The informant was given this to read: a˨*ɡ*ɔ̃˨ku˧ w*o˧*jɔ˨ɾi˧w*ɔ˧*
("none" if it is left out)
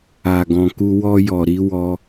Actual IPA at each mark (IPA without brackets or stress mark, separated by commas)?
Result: ɡ, ɔ˧, ɔ˧